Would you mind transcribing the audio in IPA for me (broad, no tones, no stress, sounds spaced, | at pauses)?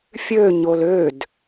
fʲ ø ɲ o l ø d